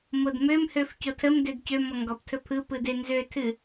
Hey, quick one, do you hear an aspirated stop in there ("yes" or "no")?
yes